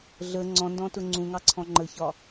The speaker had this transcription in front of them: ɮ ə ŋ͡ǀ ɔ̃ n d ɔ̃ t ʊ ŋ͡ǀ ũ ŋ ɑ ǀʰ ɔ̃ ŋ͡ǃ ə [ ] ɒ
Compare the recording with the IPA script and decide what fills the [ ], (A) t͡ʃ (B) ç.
B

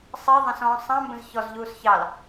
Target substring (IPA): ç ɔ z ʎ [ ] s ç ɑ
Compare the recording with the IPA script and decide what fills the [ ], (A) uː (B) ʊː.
A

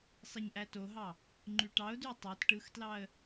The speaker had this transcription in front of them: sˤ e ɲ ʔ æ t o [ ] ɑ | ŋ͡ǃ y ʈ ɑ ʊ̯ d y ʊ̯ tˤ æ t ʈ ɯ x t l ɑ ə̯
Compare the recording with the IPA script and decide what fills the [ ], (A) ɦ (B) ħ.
A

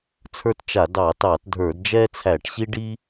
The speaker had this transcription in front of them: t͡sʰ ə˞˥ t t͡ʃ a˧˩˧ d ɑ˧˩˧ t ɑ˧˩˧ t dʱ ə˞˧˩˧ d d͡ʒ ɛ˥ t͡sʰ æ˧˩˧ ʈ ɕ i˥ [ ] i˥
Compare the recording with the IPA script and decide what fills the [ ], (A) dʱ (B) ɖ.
B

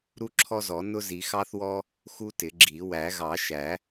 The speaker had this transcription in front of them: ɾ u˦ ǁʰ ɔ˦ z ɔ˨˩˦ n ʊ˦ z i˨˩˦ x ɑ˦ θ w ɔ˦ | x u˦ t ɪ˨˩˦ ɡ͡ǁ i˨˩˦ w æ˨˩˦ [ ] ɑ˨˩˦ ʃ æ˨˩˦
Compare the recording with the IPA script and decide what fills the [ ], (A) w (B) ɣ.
B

